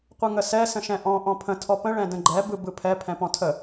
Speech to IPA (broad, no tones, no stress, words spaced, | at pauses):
qʷɯŋəsɛ sə̃ʃɛ̃ʔɔ̃ ʔɔ̃pʰə̃ tʰɔpə̃ ɭɛ̃də̃ɡ͡ǃɛ bɯbɯpʰɛ pʰɛ̃pɔ̃tʰə